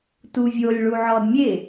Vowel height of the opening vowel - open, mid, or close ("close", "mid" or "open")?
close